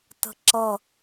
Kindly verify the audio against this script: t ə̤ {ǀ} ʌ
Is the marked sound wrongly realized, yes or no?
yes